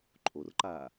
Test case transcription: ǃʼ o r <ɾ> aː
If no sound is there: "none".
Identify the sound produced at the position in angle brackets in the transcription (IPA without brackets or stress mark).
ǃ